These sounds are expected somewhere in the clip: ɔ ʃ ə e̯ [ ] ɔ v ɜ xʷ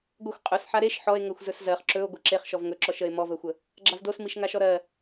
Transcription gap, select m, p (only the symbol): m